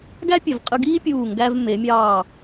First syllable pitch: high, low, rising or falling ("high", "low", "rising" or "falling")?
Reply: high